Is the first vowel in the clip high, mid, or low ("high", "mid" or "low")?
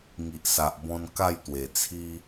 high